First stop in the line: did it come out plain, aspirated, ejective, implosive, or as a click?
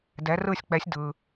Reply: plain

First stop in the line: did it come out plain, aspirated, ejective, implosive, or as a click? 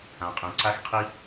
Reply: ejective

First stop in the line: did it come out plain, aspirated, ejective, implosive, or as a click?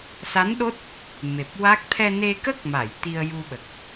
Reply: implosive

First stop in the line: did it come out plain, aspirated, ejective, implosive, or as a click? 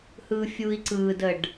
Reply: click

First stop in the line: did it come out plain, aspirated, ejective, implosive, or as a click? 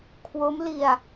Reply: aspirated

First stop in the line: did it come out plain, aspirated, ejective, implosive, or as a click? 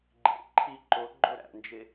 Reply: click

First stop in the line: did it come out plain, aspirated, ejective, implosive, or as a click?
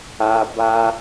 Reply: plain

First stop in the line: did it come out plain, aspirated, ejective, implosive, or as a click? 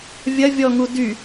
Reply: plain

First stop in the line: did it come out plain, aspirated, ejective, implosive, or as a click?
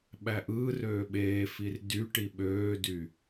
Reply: implosive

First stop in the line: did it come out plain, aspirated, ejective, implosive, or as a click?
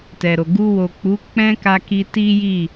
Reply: plain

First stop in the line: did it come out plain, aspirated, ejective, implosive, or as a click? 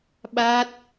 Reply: implosive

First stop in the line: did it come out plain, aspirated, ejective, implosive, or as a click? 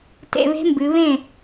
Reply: plain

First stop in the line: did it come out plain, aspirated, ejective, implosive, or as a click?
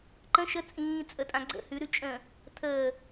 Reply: click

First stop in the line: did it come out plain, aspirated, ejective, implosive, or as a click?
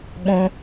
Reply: implosive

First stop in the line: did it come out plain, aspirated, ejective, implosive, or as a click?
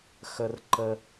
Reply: click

